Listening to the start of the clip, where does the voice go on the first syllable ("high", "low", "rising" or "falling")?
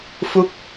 falling